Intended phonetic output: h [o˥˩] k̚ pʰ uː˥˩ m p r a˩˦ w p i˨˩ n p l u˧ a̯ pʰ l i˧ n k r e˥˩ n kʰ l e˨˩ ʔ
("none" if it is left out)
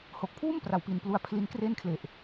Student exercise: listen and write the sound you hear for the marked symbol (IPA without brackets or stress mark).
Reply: o˨˩